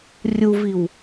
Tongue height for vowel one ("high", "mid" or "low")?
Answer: high